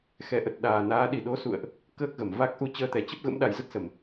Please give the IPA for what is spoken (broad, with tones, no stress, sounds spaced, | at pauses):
x ɛ˨˦ ʔ ə˨˩ t̚ ɗ aː˨˩ n aː˨˦ ɗ i˧˩ ɗ o˨˦ s ṵ˧˨ ə̯ ʔ | k əː˦˥ k̚ ɣ ə˧˩ m v a˦˥ k̚ ʔ u˧ t͡ɕ əː˧ t̪ ɛ˨˩ t͡ɕ ə˦˥ p̚ ɣ ə̰˧˥ m ɗ a˨˩ j z ə˦˥ t̚ s ə˧˩˨ m